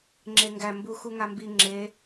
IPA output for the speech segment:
ŋ͡ǁeŋɡæ mbuxuŋambi ŋ͡ǁe

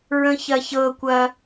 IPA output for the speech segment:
ɹə̃çɐçɤkʷɐ

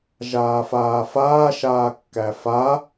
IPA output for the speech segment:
ʒaːfaːfaː ʃaːkːæfa

